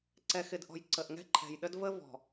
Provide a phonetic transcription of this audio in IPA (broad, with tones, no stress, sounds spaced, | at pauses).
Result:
ǀ ɛ˨ x ɪ˨ d ʔ ɔ̤˨ j ǀ ə˨ ʔ ŋ ɛ̤˦ ǃʰ ɛ̤˨ j ɗ ə˦ d v ə˦ v ɔ̤˨